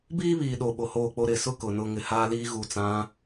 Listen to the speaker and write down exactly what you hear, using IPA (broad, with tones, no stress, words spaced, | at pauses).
biː˦βiː˨ ɗo˨ ɓo˨hoː˦˨k͡po˦ ɾɪ˨sʊ˦ kʊ˨nʊ˦ ŋɪ˨haː˦liː˦ ɣu˨t͡sã˨˦